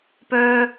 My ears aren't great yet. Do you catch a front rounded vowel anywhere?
yes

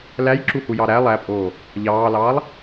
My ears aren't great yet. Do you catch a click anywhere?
yes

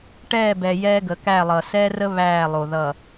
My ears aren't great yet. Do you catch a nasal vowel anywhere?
no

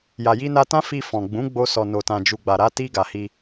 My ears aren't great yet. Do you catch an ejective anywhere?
no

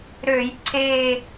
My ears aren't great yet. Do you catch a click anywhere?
yes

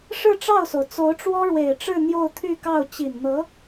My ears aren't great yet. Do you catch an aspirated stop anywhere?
yes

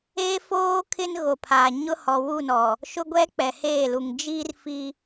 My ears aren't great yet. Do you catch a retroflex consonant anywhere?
no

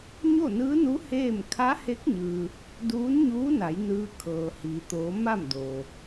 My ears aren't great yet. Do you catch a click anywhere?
no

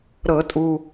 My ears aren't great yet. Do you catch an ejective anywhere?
yes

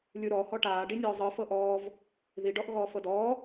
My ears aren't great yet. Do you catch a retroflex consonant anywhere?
yes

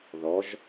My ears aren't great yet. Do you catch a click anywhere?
no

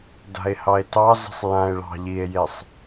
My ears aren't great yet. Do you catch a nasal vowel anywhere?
yes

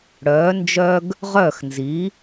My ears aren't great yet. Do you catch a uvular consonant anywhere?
yes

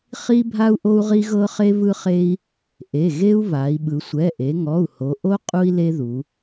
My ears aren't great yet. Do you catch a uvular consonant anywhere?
yes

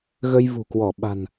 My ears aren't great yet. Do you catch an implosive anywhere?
yes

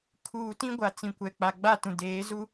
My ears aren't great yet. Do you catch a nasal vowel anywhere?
yes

